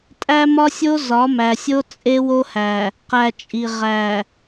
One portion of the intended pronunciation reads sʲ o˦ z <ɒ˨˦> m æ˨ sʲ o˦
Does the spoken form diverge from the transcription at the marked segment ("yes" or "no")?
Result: no